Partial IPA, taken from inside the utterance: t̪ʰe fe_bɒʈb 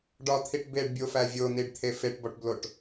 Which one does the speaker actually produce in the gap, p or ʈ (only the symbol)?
ʈ